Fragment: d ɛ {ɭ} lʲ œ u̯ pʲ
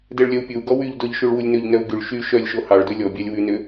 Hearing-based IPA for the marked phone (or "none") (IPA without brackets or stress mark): ɭ